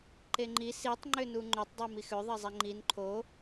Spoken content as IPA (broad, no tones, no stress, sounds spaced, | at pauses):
ǃ e ŋ͡ǃ i s i tˤ ŋ͡ǃ ʏ n u ŋ͡ǃ ʏ tˤ dˤ i m i x ʏ ðˤ ɛ zˤ e ŋ͡ǃ i n ǃʰ o